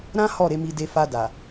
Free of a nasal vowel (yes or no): no